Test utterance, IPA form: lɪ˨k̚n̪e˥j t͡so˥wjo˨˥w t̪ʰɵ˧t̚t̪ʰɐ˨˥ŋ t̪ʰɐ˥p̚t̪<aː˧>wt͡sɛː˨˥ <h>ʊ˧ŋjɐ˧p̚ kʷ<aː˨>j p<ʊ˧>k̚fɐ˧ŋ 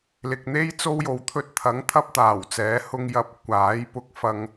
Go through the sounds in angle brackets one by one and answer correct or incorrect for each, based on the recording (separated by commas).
incorrect, correct, incorrect, correct